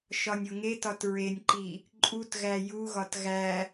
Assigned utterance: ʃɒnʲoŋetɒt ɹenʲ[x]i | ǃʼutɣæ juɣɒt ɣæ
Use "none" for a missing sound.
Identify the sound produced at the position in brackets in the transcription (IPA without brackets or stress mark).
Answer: ǃ